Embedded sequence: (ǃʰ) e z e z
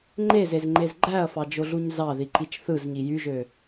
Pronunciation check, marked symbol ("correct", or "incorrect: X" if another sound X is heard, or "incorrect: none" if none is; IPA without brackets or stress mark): incorrect: ŋ͡ǃ